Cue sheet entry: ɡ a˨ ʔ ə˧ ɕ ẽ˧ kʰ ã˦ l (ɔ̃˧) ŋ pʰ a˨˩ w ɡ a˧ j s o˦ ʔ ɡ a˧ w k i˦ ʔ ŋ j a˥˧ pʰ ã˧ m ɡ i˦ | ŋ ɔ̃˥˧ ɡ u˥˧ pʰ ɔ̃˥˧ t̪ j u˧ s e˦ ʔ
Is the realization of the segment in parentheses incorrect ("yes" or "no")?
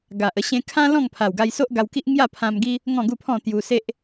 yes